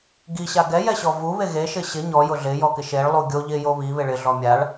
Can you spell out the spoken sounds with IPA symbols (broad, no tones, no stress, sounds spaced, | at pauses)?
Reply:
ɡ i ɕ a ɡ ɛ j ɛ ɕ ɔ v u β e ɣ e ʃ ɪ ɕ ɪ ɲ ɔ j ʊ ɮ ɪ j ɔ k ɪ ʃ e ɭ lˠ u ɡʲ o ʎ ɪ j o β i β ɪ ɭ ɪ ɮ ɔ mʲ a ɭ